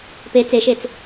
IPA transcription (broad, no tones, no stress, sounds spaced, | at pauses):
p e t͡s e ʃ e t͡s